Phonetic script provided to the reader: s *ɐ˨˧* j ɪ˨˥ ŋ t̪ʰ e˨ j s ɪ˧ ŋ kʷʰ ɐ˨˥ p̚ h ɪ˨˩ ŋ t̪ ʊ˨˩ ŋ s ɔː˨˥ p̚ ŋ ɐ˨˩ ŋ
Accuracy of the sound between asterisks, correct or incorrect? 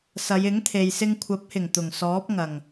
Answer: correct